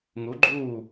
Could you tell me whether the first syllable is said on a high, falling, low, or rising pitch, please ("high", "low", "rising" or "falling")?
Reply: rising